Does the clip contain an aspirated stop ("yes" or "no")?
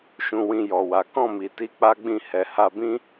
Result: no